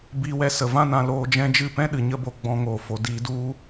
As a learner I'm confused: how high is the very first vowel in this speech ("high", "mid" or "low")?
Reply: high